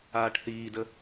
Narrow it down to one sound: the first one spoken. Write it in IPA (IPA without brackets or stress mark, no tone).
aː